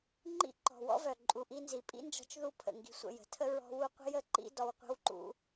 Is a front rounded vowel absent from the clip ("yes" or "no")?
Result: no